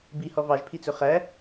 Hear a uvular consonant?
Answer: yes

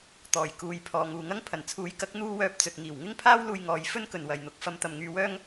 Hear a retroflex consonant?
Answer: no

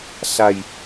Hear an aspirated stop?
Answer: no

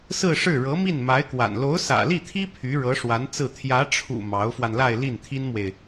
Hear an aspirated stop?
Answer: yes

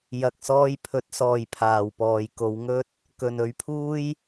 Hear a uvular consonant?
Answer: no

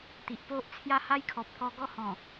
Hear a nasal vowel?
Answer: yes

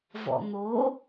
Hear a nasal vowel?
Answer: no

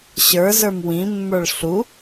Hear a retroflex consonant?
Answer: yes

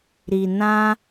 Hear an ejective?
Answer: no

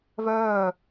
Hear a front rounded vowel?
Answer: yes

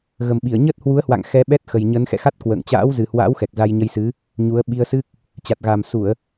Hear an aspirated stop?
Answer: no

